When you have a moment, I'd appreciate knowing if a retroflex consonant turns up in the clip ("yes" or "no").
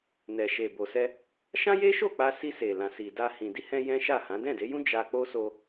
no